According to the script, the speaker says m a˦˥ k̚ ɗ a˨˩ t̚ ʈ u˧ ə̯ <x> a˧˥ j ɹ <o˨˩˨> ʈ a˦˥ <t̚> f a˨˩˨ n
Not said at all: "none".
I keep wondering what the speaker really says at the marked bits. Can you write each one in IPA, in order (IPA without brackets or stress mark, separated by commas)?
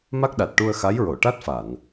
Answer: x, o˨˩˨, t̚